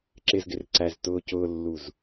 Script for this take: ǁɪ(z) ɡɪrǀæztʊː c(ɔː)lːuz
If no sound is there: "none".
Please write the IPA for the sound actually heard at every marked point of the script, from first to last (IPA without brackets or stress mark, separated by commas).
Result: z, ʊː